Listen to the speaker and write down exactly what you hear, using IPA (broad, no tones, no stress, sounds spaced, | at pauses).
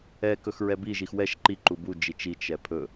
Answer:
ɛ k ɵ x ɹ ɛ b i ʒ i x w ɛ ʃ ǃ i ǃ u b u d͡ʒ i t͡ʃ i t͡ʃ ɛ pʰ ɵ